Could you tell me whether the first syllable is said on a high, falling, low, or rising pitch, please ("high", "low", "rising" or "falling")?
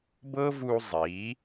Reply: high